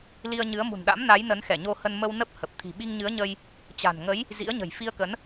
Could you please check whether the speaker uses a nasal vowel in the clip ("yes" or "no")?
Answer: no